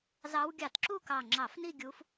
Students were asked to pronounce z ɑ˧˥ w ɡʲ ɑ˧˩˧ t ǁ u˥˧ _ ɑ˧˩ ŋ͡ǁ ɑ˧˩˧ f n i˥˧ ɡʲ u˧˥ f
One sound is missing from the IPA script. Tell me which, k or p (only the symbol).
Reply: k